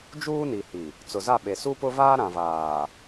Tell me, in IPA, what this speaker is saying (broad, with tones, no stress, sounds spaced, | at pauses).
d͡ʒ uː˦ n i˨ h i˨ | t͡s ʊ˨ z a˦˨ ɓ e˨ s u˦ p ʊ˦ v aː˦ ɾ ã˨ v aː˨